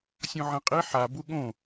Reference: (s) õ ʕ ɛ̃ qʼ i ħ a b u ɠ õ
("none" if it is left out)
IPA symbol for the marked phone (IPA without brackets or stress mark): sʲ